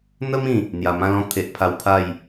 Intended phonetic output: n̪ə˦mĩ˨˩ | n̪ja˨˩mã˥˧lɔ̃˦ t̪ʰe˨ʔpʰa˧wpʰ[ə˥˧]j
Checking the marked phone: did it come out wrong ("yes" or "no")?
yes